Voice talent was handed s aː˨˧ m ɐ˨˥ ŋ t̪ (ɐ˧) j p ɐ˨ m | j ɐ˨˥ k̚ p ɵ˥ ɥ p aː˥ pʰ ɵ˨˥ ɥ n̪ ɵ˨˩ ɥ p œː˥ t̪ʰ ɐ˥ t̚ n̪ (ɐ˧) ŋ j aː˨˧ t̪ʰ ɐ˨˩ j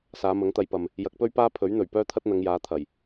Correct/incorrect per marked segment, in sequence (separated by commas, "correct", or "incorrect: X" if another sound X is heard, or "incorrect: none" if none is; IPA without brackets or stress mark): correct, incorrect: ɐ˨˧